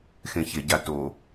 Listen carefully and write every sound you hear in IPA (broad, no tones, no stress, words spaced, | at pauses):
xẽçe ɟato